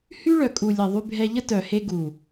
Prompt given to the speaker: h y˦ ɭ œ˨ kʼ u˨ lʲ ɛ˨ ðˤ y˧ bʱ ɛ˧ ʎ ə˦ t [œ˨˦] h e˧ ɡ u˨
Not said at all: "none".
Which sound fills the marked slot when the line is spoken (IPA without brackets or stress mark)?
œ˨